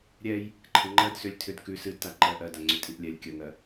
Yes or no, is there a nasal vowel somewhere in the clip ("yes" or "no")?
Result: no